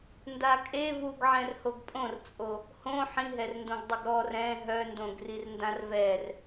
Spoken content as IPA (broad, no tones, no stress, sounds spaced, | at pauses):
n d a kʼ e v u ɡ ʕ ɛ̃ r h o ɡ pʼ õ r t͡sʼ o | h õ ħ ĩ ɦ ɛ r n d õ ɡ dˤ ə ɡ ɾ ɔ r ɛ̃ ɦ œ n d õ ɡ r i r n d ã r v ɛ r